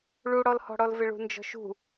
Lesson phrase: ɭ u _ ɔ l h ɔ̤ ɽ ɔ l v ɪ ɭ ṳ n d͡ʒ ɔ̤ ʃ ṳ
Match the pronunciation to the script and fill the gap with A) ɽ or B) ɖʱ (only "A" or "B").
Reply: A